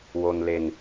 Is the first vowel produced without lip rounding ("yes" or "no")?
no